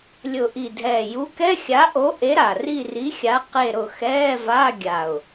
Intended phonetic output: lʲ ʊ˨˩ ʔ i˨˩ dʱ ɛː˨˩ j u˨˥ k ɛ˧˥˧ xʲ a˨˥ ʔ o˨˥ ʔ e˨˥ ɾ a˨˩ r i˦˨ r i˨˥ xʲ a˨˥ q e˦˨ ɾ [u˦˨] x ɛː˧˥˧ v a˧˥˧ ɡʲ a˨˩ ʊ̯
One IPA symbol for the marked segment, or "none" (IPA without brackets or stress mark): ʊ˦˨